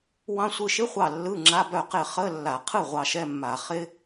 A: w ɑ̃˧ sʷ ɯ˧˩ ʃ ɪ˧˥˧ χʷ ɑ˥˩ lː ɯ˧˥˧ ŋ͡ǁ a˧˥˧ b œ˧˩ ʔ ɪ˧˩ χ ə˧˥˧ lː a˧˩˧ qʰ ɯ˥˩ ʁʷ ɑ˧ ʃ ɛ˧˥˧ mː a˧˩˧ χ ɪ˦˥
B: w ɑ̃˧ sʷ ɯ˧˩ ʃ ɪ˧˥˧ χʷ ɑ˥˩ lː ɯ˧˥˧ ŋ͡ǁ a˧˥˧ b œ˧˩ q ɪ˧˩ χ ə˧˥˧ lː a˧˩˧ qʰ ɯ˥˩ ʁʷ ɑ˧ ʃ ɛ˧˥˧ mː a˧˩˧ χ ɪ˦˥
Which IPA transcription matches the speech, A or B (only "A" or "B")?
B